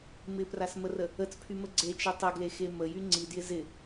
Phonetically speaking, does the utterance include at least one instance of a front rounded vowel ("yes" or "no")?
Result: yes